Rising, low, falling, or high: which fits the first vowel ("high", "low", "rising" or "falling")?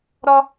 high